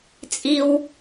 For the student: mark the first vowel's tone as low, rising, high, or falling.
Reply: high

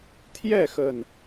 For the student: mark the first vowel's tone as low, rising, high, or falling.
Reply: falling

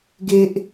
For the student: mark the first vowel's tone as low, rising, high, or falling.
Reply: low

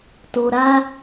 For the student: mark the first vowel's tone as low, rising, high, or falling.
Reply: low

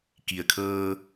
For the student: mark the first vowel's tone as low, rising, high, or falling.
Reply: low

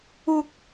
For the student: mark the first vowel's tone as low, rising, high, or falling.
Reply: high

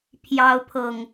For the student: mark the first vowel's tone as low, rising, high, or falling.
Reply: high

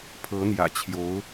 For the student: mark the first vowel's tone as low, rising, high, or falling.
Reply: rising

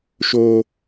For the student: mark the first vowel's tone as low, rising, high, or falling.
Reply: high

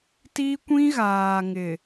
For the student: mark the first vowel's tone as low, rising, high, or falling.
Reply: high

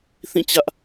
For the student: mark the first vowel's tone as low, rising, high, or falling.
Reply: falling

